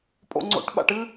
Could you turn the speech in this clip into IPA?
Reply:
pʼ o̰ ŋ͡ǀ o̰ ʈ ɓ a̰ ʈ ɨ

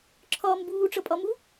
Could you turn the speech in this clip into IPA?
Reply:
ǁʰ ɒː m b uː ʈ͡ʂ ʌ pʼ ɒ m u

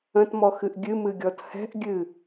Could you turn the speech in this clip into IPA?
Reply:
ə̃ t m ɔ x ɨ ʔ ɡʲ ɨ m ɨ ɡʲ ɔ t h ɛ̤ ʔ ɡʲ ɨ

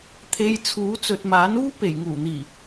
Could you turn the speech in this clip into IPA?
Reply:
t̪ʰ e˧ j t͡sʰ uː˨˥ t͡s ɵ˨ t̚ m aː˨˥ n uː˥ p e˨˩ j ŋ uː˨˩ n̪ iː˨˩

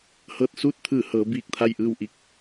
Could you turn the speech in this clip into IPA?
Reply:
h ɤː˧˩ t̚ s uː˥˨ t̚ t̪ʰ ɯː˧˩ h ɤː˩˧ b iː˧˩ k̚ t̪ʰ a˥˨ j ʔ ɯː˥˨ w ʔ i˥˨ k̚

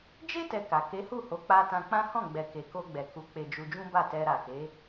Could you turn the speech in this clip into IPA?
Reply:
d͡ʒ e˦ t ɛ˧ k a˨ k e˨˦ h u˦˨ h o˨˦ k͡p a˧ t ã˧ k͡p ã˦ h ɔ̃˦˨ ɡ͡b ɛ˨ k e˨ k o˧ ɡ͡b ɛ˨ k u˨˦ k͡p e˧ d͡ʒ u˧ d͡ʒ ũ˦ b a˦˨ t ɛ˧ ɾ a˨ k e˨˦

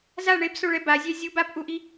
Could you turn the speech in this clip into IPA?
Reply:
z a ɳ e b s o ɭ ɛ b a zʲ ɛ zʲ u b a p ʔ u ʔ i

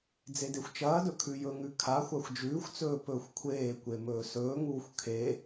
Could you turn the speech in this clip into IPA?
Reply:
d͡z e d e xʷ t͡ʃ ɐː d ɵ kʰ ʉ j ɵ ŋ ʉ kʰ a xʷ a xʷ d͡ʒ ʉː xʷ t͡s ɵː p ɵː xʷ kʷʰ eː kʷ e m ɵː s ɵː ŋ uː xʷ kʰ e

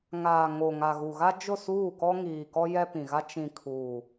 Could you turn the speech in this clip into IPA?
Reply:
ŋ aː˨ ŋ o˨ ŋ a˨ ɣ u˨ ɣ a˦ d͡ʒ ʊ˦˨ s uː˦˨ k ɔ˦ ŋ iː˨ k ɔ˦ j ɛ˦ p ĩ˨ ɣ a˦ t͡ʃ ĩ˨ kʰ uː˨

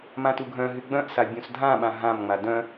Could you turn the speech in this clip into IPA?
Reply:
m ã t u ɡʱ œ̃ ɦ y ɡ͡b œ̃ ʔ s a bʲ ũ s dʱ ã ɓ ã ɦ ã m ŋ͡m a d œ̃

